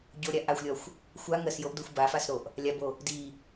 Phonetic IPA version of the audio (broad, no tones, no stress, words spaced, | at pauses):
ɟoɾʲa ʔaxʷlʲɒxʷ | xʷa ŋɜsjoʔdoxʷ bafasɾoʔ | lʲabo | di